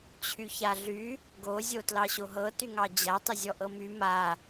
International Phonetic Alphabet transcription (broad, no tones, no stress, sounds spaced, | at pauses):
t͡ɕʰ y ç a ɮ y | ɡ o zʲ o t l ɑ ɕ o ɦ ɤ t y ŋ ɑ d͡ʑ a tˤ ɪ zʲ ɔ ʔ ɤ m y m a